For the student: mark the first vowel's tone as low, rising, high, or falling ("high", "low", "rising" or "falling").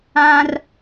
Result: high